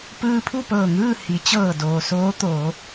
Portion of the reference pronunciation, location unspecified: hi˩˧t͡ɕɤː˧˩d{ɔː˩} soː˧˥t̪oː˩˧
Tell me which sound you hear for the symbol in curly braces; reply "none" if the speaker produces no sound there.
oː˩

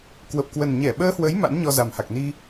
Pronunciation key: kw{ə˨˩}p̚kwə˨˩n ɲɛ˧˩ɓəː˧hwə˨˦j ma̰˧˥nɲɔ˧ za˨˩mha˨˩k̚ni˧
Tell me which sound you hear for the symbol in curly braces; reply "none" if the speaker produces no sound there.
ə˨˩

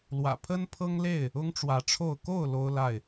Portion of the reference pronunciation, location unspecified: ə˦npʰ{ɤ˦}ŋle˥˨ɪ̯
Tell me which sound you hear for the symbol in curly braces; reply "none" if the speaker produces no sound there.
ɤ˦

